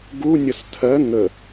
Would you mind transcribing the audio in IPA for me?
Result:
ɡu nʲʌstʰɜ ŋə

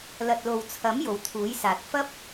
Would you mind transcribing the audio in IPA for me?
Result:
lɐ˨t̚lo˨wt͡sʰɐ˨˥m jo˨wt̪ʰuː˨˥jsaː˨t̚ fɐ˥p̚

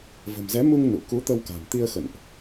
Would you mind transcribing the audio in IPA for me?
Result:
və̤˨˩mzɛ˨˦mu˧ŋ nṵ˧˨ ku˨˦t̪ə˧wka̤˨˩m t̪i˧ə̯ xə̰˧˨nʔ

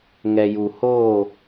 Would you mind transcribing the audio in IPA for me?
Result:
ŋɛ˨ju˨ hoː˦˨

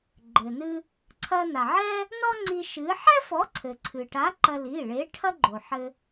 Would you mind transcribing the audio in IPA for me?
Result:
ɡ͡ǃɘ˩nɨ˧ | ǀʰɐ˧na˩ʕɛ˥ | nɔ˥ŋ͡ǀi˧ ʃɨ˨˥ ħɛ˥fɔ˨˥ ǀʰɘ˩ǀʰɨ˩ʈa˨˥ ǃɐ˧li˩˧˩ɭe˨˥ ʈʰɐ˥ɡ͡ǃo˩ħɘ˧

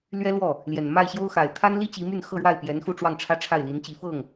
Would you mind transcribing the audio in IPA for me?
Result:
lɥɛ˥ lwɔ˥˩ | ljɛ˨˩nma˥˩ɪ̯ ɕjo˥ʊ̯ xa˨˩ɪ̯ t̪ʰa˥nli˥ t͡ɕi˧˥my˥˧nxɤ˥˧ɻwa˥˩ɪ̯ pjɛ˧˥nxu˥˧ ʈ͡ʂwɑ˥˩ŋʈ͡ʂʰä˥ ʈ͡ʂʰa˥˩ɪ̯li˧˥nt͡ɕi˧˥fɤ˥˩ŋ

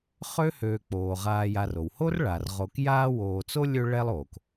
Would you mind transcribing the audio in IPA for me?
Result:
χø˥høː˨k͡poː˩ ʁaː˨ja˨ro˩who˥r ɭa˩rʁo˨k jaː˦woː˨ t͡so˥lʲø˦ ɭɛ˦lˠoː˩k

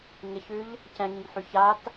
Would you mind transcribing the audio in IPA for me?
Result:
ŋɪçʉʎ | cɛ̃ŋĩŋħy çat

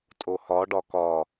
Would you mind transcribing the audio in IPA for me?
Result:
tʼohɒ ɖɒkɒ

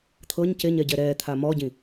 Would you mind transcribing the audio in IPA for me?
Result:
t̪ʰɤɲ ceɲɛɟɛ ɾɛt̪ʰa mɔɟĩ

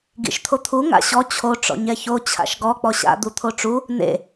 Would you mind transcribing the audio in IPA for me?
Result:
ɡḭʃt̪ʰot̪ʰu ŋa̰ɕɔ t͡ɕʰo ʈ͡ʂɔ̰ɲɛço t͡ɕʰa̰ʃɡɔ k͡pɔɕa̰ d̪ut̪ʰoʈ͡ʂu | nḛ

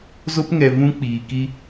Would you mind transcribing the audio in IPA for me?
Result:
zo˦pŋɛ˨ vũ˦k͡piː˨ki˦

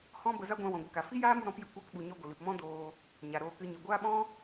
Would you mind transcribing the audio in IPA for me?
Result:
hɔ̃˦bə˧za˦ ɡʷã˧wɔ̃˨ɡʷə˧ka˨ fi˦jaː˦mu˧ ɾɔ̃˨˦pjɨ˧ kʷa˧kɓu˨ɲɔ˧ ɡʷə˨lɨ˨pmɔ̃˦ doː˧ | ɲa˨ɾoː˧kɨ˧ ɲɨ˨ɡʷaː˦ɓɔ̃˦

